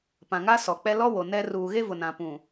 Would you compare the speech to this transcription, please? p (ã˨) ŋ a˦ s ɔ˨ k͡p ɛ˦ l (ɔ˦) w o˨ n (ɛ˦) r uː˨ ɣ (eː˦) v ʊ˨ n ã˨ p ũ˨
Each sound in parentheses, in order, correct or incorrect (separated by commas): correct, correct, correct, incorrect